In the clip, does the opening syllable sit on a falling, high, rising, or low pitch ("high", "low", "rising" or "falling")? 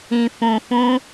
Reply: low